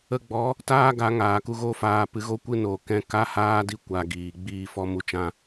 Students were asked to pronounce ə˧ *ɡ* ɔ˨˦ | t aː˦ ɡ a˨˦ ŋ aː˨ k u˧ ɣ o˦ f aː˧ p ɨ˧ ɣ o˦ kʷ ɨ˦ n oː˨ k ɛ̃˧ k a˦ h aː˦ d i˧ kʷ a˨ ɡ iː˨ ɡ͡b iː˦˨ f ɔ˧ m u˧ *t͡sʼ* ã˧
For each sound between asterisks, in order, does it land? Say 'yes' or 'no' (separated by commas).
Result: no, no